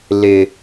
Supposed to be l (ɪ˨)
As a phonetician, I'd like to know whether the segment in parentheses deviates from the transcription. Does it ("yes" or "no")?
yes